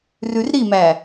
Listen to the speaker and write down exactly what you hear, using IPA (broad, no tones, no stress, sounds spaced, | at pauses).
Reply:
r ʉ r ɾ i m æ